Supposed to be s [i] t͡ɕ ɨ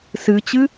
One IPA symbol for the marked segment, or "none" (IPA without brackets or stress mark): ɨ